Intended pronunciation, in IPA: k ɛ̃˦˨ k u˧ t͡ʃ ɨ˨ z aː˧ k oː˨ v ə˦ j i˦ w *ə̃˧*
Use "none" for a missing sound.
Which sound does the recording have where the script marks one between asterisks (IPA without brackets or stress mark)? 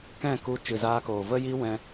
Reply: ɛ̃˧